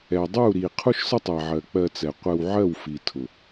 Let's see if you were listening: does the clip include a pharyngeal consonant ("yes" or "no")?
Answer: yes